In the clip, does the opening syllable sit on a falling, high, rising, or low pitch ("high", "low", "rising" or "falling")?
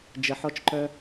low